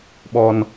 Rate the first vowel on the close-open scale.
mid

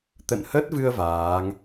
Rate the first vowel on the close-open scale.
mid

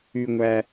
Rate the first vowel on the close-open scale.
close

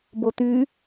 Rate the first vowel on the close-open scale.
mid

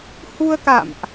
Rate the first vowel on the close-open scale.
close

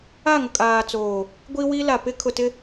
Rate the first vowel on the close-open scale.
open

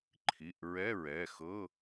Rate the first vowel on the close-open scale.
close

